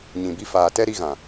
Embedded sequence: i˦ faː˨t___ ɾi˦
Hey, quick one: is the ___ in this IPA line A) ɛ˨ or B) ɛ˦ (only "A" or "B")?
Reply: B